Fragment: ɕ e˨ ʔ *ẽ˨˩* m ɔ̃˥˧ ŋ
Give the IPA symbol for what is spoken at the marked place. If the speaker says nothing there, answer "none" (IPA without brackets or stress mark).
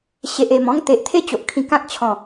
e˨˩